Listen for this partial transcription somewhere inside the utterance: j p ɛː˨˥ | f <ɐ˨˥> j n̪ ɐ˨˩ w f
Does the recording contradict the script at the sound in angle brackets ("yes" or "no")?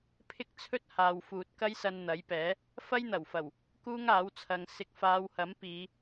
yes